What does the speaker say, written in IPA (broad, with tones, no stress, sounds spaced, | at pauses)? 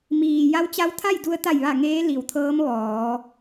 m iː˩ j a˧˥ w t͡ɕ a˧˥ w t̪ʰ a˥˨ j d u˧ ə̯ t̪ a˧˩ j ʋ a˧˩ ŋ eː˧˥ l i˩ w t̪ʰ ɤː˧˥ m ʋ ɔː˩˧